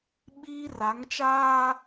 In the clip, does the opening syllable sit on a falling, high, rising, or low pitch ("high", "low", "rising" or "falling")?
high